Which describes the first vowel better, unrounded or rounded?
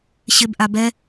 unrounded